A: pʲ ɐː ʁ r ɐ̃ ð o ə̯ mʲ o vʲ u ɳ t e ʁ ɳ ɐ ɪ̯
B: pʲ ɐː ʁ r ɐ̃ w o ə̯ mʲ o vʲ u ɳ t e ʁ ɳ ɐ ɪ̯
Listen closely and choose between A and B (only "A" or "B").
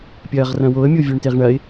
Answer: B